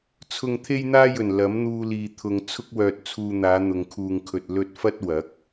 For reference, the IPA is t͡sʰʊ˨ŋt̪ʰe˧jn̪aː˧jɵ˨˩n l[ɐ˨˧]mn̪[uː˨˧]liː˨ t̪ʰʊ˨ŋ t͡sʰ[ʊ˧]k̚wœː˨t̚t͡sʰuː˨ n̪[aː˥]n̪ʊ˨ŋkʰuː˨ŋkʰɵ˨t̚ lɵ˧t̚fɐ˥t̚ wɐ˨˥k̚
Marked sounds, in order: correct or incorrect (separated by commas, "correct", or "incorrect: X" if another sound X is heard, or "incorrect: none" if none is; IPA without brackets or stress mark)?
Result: incorrect: ɐ˨˥, incorrect: uː˧, correct, incorrect: aː˨˧